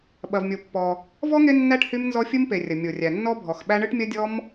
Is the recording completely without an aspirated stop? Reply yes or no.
yes